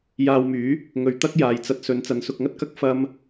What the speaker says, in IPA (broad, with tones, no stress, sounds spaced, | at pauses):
j aː˧ w m yː˨˥ | ŋ ɵ˨˧ ɥ t̪ ɐ˥ k̚ j aː˨ j t͡s ɐ˧ t̚ s ɵ˨˧ n t͡s ɐ˨˧ n s ʊ˧ k̚ ŋ ɐ˥ t̚ k ɐ˥ k̚ f ɐ˥ m